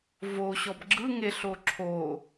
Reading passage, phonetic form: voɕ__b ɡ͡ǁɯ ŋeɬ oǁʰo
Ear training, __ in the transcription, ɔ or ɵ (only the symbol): ɔ